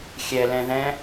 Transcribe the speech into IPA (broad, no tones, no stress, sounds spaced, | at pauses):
xʲ ɛ l ɛ̃ ð ɛ̃